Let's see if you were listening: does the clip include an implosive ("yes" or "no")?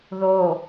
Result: no